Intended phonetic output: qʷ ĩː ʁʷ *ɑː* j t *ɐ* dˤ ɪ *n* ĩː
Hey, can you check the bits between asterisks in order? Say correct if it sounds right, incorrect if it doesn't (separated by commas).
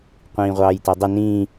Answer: correct, incorrect, correct